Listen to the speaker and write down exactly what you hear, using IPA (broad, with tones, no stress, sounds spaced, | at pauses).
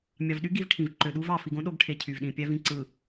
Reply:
mʲ ɑ˨ v ɗ y˦ ɡ i˦ v ʈʰ ĩ˨ v ǃ ø˨ ɗ u˦ v ɑ˨ f i˨ ɡ õ˦ ɗ o˦ ɡ ʈʰ e˨ cʰ y˨ v ɗ ĩ˨ pʲ æ˦ v ĩ˨ ǀ ɯ˨